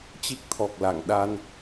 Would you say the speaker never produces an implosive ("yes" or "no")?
no